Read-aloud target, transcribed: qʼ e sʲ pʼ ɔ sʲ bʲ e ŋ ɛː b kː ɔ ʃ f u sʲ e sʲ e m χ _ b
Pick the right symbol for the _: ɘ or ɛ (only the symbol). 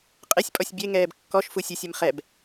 ɛ